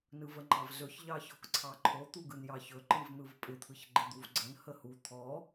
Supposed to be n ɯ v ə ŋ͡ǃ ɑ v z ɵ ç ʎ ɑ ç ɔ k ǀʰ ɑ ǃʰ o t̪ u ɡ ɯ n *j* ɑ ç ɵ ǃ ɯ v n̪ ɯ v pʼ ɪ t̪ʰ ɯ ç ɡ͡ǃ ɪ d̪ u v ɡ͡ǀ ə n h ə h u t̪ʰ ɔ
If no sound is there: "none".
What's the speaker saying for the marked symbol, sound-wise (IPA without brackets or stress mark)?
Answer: j